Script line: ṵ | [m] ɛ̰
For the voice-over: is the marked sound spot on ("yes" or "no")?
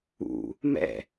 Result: yes